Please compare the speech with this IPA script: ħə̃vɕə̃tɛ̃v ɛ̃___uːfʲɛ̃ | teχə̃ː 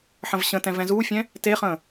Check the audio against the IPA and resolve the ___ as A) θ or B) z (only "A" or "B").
B